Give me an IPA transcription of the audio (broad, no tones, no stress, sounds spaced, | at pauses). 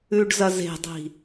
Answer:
ʉ ɖ z ɐ z e̤ dˤ i̤